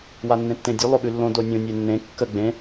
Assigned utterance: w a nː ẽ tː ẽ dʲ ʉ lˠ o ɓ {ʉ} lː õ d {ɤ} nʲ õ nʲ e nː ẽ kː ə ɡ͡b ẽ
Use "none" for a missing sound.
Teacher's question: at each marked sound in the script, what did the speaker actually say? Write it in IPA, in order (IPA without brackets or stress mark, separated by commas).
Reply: ʉ, o